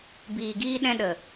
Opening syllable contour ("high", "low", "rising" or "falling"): low